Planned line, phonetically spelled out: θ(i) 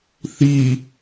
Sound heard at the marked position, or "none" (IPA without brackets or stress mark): i